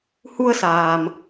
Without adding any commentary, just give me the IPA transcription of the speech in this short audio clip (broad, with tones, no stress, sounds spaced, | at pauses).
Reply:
h u˧ ə̯ s aː˩ m